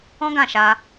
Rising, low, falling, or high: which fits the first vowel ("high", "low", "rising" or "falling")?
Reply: high